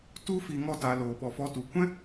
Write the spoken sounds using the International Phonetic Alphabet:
t u˦ f i˧ ŋ ɔ˦˨ t a˧ l oː˧ ɓ ɔ˧ f ɔ˦ t u˨˦ kʷ ɛ̃˦

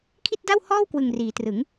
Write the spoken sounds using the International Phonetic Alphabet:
kʰ i˥˩ t̚ d a˥˩ w h ɔː˥˩ w k w ɯ˨˩ ŋ r iː˩˦ t r ɯ˩˦ ŋ

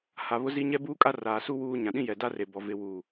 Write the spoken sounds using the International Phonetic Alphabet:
h a˨ β ʊ˦ z i˦ ɲ ɛ˦ b uː˦ kʼ a˦ r aː˨ s u˦ w uː˦ ɲ ã˨ ɗ ĩ˦ j ɛ˨ d a˦ r e˨ b ɔ˨ v ɪ˦ w uː˦˨

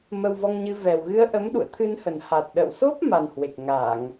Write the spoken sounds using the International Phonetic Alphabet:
m ə˧ w v ɔ˧ ŋ ɲ ɨ˧ v ɛ˨˩ w ɣ ɨ˧ ə̯ ʔ ə˨˦ m ɗ ṵ˧˨ ə̯ t̪ʰ ɨ˧ n h ə˨˩ n h a˨˩ t̚ ɗ ə̰˧˨ w s o˦˥ p̚ m a˨˩ n h w e˨˩ k̚ ŋ a˧˩˨ ŋ

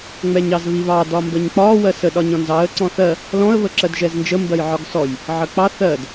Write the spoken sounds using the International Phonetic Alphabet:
ŋ͡m ɛ ɲ ɑ z β i β ɑ d ɒ m b ə ɲ k͡p ɒ w ɜ s ə ɗ ɒ ɲ ɔ̃ n z ɑ ə̯ ǀ ɔ̃ θ ɜ | l ɔ̃ ə̯ β ə ǁ ɜ d ʒ ɛ z n d͡ʒ ə m b ɜ j ʕ ɒ ɡ s ɔ j | ʕ ə k͡p ɑ θ ɜ d

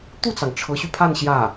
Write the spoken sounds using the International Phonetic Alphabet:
t̪ u˥˩ t͡s ɑ˩ ŋ ʈ͡ʂʰ ɤ˧˥ ɕ y˧ pʰ a˥˧ n ɕ j ä˥˩

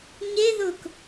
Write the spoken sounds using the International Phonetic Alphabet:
ɲ e ð ʊ k

